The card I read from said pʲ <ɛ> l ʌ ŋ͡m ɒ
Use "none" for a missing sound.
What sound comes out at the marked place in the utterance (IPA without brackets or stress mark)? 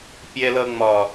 ɛ